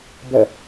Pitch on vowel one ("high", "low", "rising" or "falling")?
falling